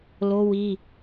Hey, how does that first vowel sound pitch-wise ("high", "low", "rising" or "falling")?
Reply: high